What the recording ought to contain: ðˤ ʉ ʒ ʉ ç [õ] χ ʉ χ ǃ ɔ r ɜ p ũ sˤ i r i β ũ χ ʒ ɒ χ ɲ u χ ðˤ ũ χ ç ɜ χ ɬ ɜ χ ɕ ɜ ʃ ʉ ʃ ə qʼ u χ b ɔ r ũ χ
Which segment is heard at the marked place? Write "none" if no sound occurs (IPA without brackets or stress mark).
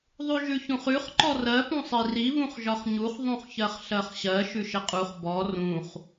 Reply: ũ